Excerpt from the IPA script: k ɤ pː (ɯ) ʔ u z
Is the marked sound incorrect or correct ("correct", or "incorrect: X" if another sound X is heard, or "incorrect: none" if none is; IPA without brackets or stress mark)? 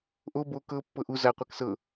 incorrect: ɤ